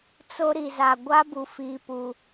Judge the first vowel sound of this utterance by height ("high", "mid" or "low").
mid